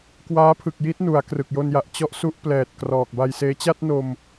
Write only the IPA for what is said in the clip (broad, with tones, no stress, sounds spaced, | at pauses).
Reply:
k w aː˦˥ pʰ ɯ˨˩ k̚ j i˦˥ t̚ n u˩˦ a̯ k r ɯ˨˩ k̚ j o˧ n j a˨˩ ʔ t͡ɕ ɔ˦˥ ʔ s u˦˥ ʔ p l ɛː˨˩ t̚ k r ɔː˨˩ k̚ b a˧ j s eː˦˥ t͡ɕ a˥˩ t̚ n o˧ m